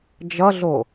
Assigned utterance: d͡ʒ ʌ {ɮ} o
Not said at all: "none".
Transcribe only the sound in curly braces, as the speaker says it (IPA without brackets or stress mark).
ɮ